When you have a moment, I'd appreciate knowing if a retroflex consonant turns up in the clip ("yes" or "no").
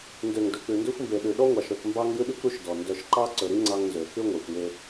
no